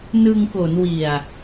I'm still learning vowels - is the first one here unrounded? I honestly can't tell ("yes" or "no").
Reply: yes